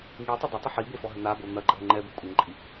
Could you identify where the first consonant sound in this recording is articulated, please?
velar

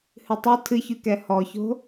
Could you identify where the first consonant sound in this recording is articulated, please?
glottal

